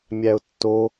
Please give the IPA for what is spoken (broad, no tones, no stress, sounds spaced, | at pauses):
mʲ æ ʊ̯ tː o